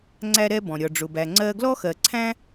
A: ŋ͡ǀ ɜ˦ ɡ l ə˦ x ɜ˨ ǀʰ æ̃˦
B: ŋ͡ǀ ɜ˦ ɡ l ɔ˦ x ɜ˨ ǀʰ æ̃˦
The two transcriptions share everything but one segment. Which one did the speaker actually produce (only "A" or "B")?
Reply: B